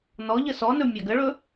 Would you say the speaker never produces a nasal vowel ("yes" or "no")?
yes